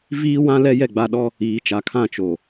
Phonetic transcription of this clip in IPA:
v iː˦ w ã˦ l ɛ˦ j ɛ˦˨ ɡ͡b a˦ ɗ ɔ˦ | iː˨ t͡ʃ a˨ kʰ ã˦˨ t͡ʃ o˨

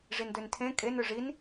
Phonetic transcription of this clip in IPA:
ʐ i n d ø n tʰ ẽ kʼ e n ø ʐ i n

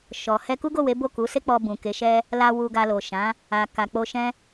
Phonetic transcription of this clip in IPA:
ʃ ɔ˨ h ɛ˧ k u˦ ɡ o˦˨ w e˨˦ b o˦˨ k u˨˦ s e˦ k͡p ɔ˧ b ũ˨ k e˨˦ ʃ ɛ˦ | l a˧ w u˧ ɡ a˧ l o˨ ʃ ã˨˦ | a˨ k a˨ k͡p o˧ ʃ ɛ̃˦

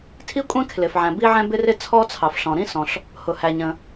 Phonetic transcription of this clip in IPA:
tʰ i˥ kʷʼ ɛ̃˥ kʰ l ɪ˩ f ʕ æ̃˩ b i˥ ʕ ɛ̃˥ b ɪ˥ r ɪ˥ t͡sʰ ɔ˥ t͡sʰ ɑ˩ f ɬ ɔ̃˩ ɾ ĩ˥ s ɔ̃˩ ɬ | h ʊ˩ h æ˩ ɲ ə̃˩

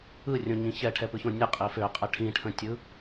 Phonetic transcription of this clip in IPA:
ɯ rʲ õ ɲ ĩ ç ɛ ʈʰ ɛ p ɯ ç õ nʲ ə qʼ i f ø qʼ ɛ ʈʰ ĩ ʈʰ ə̃ tʲ ɯ

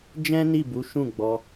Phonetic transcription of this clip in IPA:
d͡ʒ ɛ̃˦ n i˦˨ b u˨˦ ʃ ũ˦˨ ɡ͡b ɔ˧

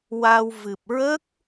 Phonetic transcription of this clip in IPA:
w a˧ w v ɨ˨˩ p̚ ɹ ə˦˥ k̚

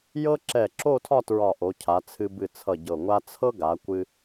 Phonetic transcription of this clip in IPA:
j ɤ˥ ǁ ɛ˧˩ ǁ o˥˧ tʰ ɒ˥˧ t ɹ ɒ˧˩ ʔ o˩˧ cʰ a˩˧ t͡sʰ ɨ˧ b ɨ˧˩ t͡sʰ ʌ˧˩ ɟ ɤ˧˩ ŋʷ a˥ t͡sʰ ɤ˥ ɡ a˩˧ kʷ ɨ˧

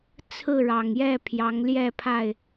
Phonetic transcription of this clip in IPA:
t͡sʰ ɹ̩˥˨ ɻ ɑ˨˩ ŋ j ɛ˥˨ pʰ j ɑ˨˦ ŋ l j ɛ˥˨ pʰ a˥˨ ɪ̯

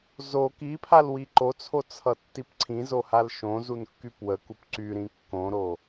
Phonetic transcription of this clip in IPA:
z o k i pʰ a l w i ǃ o t͡sʰ o t͡sʰ ʌ tː i p ǀʰ ĩ z o h a l ʃ õ z u n kː y p w ə k u p ǀ y ɾ ĩ kː õ ɾ o

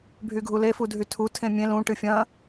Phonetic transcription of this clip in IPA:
bʱ y ɡʱ u l e f u dʱ y tʰ u tʰ ẽ mʲ ẽ l ũ ʈ ɨ fʲ ɐ̃

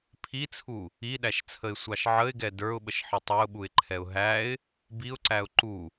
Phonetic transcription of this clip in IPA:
pʰ i t͡sʰ u | i ɗ æ ʃ t͡sʰ ə ɪ̯ sʷ ɑ ʃ ʕ ə ɪ̯ ɡ ɛ d ə˞ ʊ̯ ɓ ə ʃ ħ ɪ tˤ ɛ ʊ̯ ɓ u ɪ̯ ǃʰ ɛ ʊ̯ ɦ æ ɪ̯ | b i ʊ̯ ǀ æ ʊ̯ ǃ u

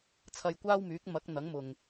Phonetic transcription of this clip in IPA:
t͡sʰ ɐ˧ j kʷ aː˥ w m yː˨˥ k̚ m ɐ˨˥ k̚ n̪ ɐ˨˥ ŋ m ʊ˨ ŋ

